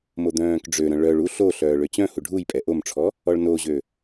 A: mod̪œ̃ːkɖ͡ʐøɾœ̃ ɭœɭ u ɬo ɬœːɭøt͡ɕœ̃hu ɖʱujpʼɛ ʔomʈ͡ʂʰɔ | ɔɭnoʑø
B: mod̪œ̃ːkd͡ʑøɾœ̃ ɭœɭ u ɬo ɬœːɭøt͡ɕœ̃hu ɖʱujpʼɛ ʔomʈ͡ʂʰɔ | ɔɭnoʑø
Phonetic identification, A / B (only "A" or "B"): A